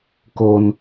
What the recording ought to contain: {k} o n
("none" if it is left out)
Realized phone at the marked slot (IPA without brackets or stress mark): k